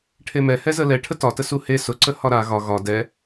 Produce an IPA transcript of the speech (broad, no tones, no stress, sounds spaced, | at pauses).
ʈʰ e m ɛ h ɛ z ə l ɛ ʈʰ ə t ɒ t ə s u h e s ʊ ǀ ə h ɒ ɾ a ɣ ɒ ɣ ɒ d ɛ